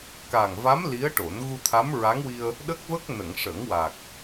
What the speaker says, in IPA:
k a˨˩ ŋ v a˧˥ m l i˧˥ ə̯ ʈ o˨˩˦ n ɣ u˧ t̪ʰ a˧˥ m ɹ a˧˥ ŋ w i˧ ə̯ | ɗ ə˦˥ k̚ v ə˦˥ k̚ n ə˨˩˨ ŋ ʂ ə˨˩˦ ŋ w a˨˩ k̚

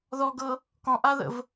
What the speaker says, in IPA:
ð ɔ ɡ ɤ | k ɔ̃ ʔ a ð ə̰ v

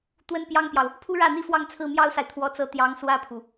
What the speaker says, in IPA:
t̪ w ə˥ n p j ɑ˥ ŋ p j ɑ˨ ʊ̯ | pʰ u˥ ɻ ä˥˩ n̪ i˥ f w ɑ˥˧ ŋ t͡sʰ ɹ̩˥˩ m j ɑ˥ ʊ̯ s a˨ ɪ̯ t̪ʰ w ɔ˧˥ t͡s ɤ˧˥ t̪ j ɑ˧˥ ŋ s w ä˥˩ pʰ u˩

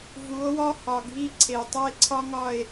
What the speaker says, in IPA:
v u˨˦ o̯ w ɒ˦ h ɒ˨ ɡʱ i˦ ǀʰ e˨ tˤ æ˦ e̯ ǀʰ ɒ˦ ŋ ɒ˦˨ e̯

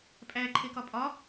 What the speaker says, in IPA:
pʼ æ ǃʰ e k ɒ pʼ ɒ

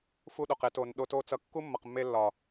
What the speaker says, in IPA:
f u˧ ɗ o˨ q e˧ t o˨ n ɗ o˧ t o˦ t͡s ʌ˧ kː u˦ mː ʌ˨ q mː e˧ lː ɒ˨

